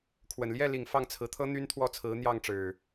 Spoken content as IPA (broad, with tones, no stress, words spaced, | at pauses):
kʰwə˨˩nljɛ˥˨li˨˩ŋ fɑ˥˨ŋt͡sʰɹ̩˨˦t̪ʰɤ˦ n̪y˦nt̪ʰwɔ˥˨ t͡sʰɹ̩˨˦n̪jɑ˥˨ŋʈ͡ʂɻ̩˨˩